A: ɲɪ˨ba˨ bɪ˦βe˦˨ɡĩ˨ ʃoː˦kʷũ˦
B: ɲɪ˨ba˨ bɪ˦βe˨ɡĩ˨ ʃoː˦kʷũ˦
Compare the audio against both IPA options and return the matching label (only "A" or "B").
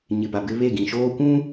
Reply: A